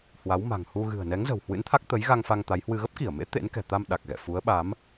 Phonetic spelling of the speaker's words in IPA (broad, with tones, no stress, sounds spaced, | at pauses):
h w a˨˦ w m a̤˨˩ ŋ h u˧ ɣ ɨ̤˨˩ ə̯ n ɛ˨˦ ŋ z ə̤˨˩ w h w ɨ̰˧˥ n t̪ʰ a˦˥ k̚ t̪ ə˨˦ j ɣ a˧ ŋ f a˧ ŋ t̪ a˨˦ j h w ɨ˧ ɣ ə˦˥ p̚ k i˧˩ ə̯ m ḛ˧˥ t̪ ḛ˧˥ n k ɛ̤˨˩ t̪ a˧ m ɗ a˨˩ k̚ ɣ ɛ̰˧˨ f u˨˦ ə̯ ɓ a˨˦ m